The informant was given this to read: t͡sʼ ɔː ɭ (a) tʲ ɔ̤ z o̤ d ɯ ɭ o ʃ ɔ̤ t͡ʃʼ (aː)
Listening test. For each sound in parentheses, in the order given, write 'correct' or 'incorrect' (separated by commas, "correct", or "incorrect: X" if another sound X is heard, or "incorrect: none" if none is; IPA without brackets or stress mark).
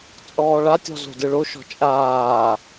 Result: correct, correct